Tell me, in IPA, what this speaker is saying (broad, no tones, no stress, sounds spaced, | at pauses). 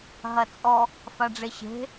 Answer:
ɦ ɐ t͡sʼ ɔ | f a ɖ͡ʐ e ɕ e̤